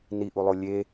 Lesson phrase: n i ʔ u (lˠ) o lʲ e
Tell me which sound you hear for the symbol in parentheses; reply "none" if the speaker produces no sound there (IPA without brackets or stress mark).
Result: lˠ